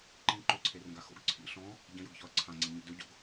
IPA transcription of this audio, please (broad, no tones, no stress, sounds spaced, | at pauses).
ǃ ĩ ǃ ɵ ǀʰ e r ə̃ ɡ a x o̰ ɡ ǀʰ ḭ ɬ ɔ̃ | ɟ ə̃ j ʊ ɡ ç ɔ ɐ̯ ǀʰ ã ŋ͡ǀ ĩ ɡ ɲ ḛ d ɵ ɟ o̰ ɡ